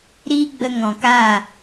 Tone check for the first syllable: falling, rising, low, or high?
high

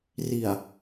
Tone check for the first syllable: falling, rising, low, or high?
low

